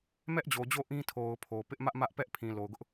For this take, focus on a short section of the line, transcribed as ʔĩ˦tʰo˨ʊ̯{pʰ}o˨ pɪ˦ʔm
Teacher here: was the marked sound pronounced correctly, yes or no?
yes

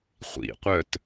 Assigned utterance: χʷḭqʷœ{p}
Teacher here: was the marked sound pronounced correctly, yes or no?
no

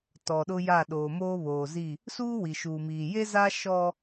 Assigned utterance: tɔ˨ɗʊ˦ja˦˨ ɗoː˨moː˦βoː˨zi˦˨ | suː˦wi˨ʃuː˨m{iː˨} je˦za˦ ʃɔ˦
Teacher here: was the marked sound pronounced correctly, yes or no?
yes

